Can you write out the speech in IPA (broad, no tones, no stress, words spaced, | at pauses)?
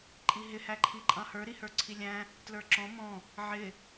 ǃʼiɦɪ hæǃʰiǃʼɑ̃hə˞ ɾihə˞ǀʰilʲæ̃ | tlə˞ǁɔ̃ mɔ̃ | ʕɪ